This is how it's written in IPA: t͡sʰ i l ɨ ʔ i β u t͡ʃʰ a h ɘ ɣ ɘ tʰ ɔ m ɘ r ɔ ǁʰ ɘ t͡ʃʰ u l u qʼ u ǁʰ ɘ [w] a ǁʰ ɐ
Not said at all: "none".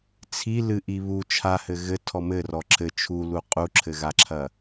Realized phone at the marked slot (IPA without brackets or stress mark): ɣ